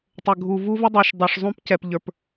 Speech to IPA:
tˤ ə˨ ɡʱ u˨ v u˦ v ɪ˦ dˤ ə˞˨ ʃ dˤ ə˞˨ ʂ zˤ ũ˦ p c ɛ˨ p ʎ ə˞˨ p

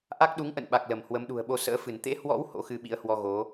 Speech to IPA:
ʔ a˦˥ k̚ ɗ u˨˦ ŋ ʔ ə̰˧˨ n ɓ a˨˩ k̚ l ə˧˩ m h w ə˨˦ m ɗ ṳ˨˩ ə̯ ɓ o˧ s ə̰ː˧˥ f ɨ˧˩ n t̪ ḛ˧˥ h w ɔ̰˧˥ w h o̰˧˥ x ɨ˧ ɓ ḭ˧˥ ə̯ h w ɔ˧ ɣ o˨˦

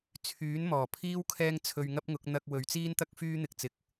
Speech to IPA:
t͡sʰ yː˨˥ n m ɔː˨˩ pʰ iː˥ w kʰ ɛː˥ ŋ t͡sʰ ɵ˧ ɥ ŋ ɐ˥ p̚ ŋ ʊ˨˥ k̚ n̪ ɐ˥ k̚ w ɵ˨˧ ɥ t͡s iː˥ n t̪ ɐ˥ k̚ f yː˥ n̪ ɪ˧ k̚ t͡s ɪ˧ k̚

